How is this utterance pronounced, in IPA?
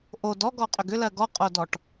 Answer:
ʔod ɔɡɔqʼʏɡ ʏlɜ ɡɔqʼodɔʈ

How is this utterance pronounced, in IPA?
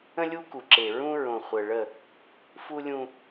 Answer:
ə̃˦lʲu˦ku˨ǁe˨ ɹũ˦ɹõ˨ χʷə˨ɭə˦˨ | fu˦ lʲũ˦

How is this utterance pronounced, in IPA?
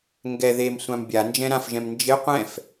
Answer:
ŋɡɛ ðemsʷãm bʲand͡ʒɛ̃ ɾãfʒɛ̃m nd͡ʒɪ qʷɛ̃f

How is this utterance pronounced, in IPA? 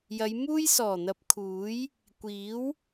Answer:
jɐ˨˧j muː˥j sɔː˨˩n̪ɐ˨˥p̚kʰuː˨˥j | kʷiː˨˥w

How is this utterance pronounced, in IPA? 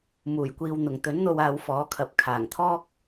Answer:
muː˨˩jkʷiː˨wn̪ʊ˨˩ŋ t̪ɵ˨˥nn̪o˧waː˨˧w fɔː˨˥kʰɐ˨˥p̚ kʰaː˨˩ŋt̪ʰɔː˥k̚

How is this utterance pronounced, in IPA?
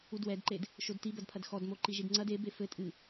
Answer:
udwɛdǃed | ʃodtibɐdpʰɐd xɔdmo ǃiʒidŋ͡ǀɐd e befɘ tʼɨ

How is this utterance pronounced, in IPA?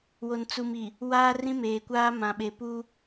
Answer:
wo˨nt͡su˨mi˨ | waː˦rĩ˦meː˨kʷaː˦ mã˨ɓe˨ pu˦

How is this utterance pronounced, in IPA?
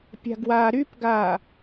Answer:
pʲa̤ɡwaːɾypɡaː

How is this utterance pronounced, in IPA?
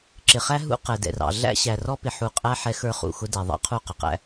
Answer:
ǁɪ˨χæ˦ ɦṵ˦ qɛ˨dɛ̰˨rɑ̰˨ ɮæ̰˦ ɕæ˨rɔ˦pɪ˨ ħu˨qʼæ˦ ħɛ˦xə˞˦χṵ˨xʊ˦ dɛ˨ðˤɑ̰˦ qʰu˦˨qʊ˨qæ̰˦

